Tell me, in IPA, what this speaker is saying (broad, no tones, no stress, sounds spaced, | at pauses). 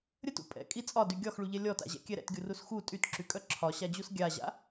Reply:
ɾʲ ə t ṵ pʼ ɛ̰ kʼ i t͡sʼ ɒ d y ɡʲ ɒ x ɭ u ʎ ɛ lʲ ɔ t a̰ ʑ ɛ̰ kʲ ɛ ɾ ɛ̰ t ɡʲ u r u s x u tʼ y t ǁ y kʼ œ ǁʰ ɒ ɕ a d͡ʑ u s ɡʲ a ʑ a̰